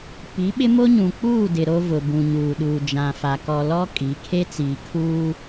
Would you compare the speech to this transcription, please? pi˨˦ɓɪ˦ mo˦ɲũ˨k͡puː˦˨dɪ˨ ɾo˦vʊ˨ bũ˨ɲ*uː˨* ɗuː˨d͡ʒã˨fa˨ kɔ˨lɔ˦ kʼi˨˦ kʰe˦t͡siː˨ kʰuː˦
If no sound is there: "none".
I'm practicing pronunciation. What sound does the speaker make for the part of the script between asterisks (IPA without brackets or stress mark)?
uː˨